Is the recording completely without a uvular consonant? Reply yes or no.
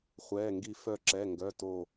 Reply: no